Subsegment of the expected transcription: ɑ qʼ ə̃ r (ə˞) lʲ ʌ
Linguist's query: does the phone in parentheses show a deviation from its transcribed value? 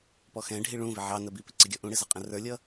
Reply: no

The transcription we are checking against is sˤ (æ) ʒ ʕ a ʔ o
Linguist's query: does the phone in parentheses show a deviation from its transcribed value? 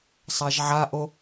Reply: no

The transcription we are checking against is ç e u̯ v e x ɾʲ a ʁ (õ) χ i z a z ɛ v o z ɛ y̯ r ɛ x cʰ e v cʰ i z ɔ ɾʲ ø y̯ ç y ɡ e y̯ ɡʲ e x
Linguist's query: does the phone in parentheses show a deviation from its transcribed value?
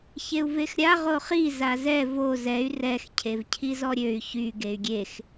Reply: yes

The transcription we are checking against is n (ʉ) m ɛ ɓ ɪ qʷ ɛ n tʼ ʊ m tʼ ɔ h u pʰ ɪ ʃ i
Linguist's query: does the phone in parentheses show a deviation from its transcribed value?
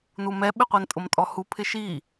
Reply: yes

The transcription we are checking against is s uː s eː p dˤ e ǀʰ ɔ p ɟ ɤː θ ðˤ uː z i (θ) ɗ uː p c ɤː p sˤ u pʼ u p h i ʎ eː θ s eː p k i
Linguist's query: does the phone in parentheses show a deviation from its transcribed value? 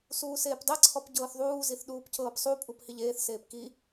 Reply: no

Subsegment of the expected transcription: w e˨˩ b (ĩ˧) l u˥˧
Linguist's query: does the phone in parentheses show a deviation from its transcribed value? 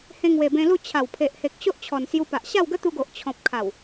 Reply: yes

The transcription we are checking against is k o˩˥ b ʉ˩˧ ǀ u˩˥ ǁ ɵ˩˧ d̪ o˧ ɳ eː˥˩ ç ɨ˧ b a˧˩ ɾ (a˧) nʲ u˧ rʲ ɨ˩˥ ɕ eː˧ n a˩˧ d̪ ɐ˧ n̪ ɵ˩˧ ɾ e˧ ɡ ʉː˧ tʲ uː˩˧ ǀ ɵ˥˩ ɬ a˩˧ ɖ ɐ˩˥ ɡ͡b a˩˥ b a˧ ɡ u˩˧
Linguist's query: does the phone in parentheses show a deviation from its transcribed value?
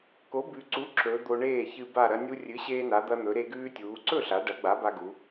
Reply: yes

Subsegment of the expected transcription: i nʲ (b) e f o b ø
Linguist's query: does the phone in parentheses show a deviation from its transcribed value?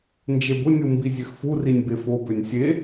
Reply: no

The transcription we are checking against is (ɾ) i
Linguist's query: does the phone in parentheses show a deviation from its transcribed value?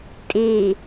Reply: yes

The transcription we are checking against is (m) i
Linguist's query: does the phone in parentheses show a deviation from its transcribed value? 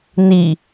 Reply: yes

